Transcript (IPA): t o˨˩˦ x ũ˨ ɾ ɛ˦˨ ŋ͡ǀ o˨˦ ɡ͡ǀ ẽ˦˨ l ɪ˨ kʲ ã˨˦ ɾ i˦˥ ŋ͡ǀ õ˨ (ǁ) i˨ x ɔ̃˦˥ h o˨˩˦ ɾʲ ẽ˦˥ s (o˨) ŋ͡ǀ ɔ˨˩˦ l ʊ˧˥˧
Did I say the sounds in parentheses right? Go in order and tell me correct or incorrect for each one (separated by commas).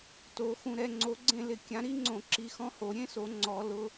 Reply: correct, incorrect